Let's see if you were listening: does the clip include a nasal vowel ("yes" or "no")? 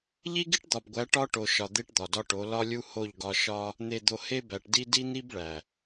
no